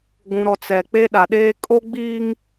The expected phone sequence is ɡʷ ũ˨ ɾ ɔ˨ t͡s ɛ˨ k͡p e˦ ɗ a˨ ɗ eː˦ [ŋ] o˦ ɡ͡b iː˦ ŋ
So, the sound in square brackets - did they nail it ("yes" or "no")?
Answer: no